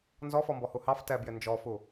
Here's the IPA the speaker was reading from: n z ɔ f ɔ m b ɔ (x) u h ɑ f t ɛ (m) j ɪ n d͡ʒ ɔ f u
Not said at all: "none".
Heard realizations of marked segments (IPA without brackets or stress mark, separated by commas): h, b